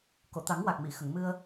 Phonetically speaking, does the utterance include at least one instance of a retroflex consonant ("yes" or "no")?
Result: no